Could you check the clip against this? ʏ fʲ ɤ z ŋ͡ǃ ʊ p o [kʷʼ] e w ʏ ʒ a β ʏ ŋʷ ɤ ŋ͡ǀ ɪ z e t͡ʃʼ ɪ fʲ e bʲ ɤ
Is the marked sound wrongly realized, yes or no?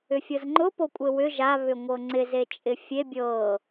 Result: no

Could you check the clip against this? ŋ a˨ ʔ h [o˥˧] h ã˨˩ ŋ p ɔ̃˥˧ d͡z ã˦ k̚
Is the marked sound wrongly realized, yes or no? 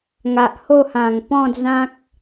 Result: no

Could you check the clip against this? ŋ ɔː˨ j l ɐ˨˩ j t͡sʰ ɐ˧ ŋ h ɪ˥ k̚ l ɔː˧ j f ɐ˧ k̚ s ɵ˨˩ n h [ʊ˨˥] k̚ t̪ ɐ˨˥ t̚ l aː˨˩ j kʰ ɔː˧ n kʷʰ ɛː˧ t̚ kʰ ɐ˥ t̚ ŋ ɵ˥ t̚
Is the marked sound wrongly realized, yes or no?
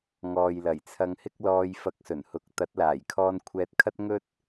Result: yes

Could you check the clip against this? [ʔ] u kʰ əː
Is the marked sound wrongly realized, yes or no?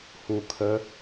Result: yes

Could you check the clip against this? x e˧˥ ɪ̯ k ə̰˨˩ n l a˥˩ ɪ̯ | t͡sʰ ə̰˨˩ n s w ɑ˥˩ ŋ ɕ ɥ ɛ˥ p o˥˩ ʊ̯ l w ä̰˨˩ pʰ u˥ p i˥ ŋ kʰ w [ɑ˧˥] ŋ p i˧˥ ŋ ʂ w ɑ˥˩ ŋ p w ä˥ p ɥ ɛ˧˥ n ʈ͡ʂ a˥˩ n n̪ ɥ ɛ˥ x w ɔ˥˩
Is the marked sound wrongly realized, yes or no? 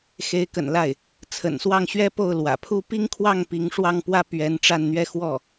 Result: yes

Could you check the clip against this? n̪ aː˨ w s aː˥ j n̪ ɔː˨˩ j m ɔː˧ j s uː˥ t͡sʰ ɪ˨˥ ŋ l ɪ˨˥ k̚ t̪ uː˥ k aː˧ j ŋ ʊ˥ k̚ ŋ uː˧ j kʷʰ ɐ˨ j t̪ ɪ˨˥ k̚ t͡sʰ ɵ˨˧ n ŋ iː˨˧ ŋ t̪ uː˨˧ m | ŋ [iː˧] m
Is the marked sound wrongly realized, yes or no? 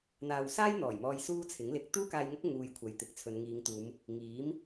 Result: yes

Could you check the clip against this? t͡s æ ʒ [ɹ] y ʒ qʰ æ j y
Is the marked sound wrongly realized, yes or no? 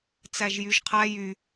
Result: yes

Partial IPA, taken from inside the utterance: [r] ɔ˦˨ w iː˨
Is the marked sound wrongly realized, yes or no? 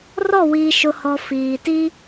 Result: no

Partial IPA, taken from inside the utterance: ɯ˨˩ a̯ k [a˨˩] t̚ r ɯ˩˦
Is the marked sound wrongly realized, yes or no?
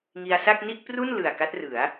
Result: yes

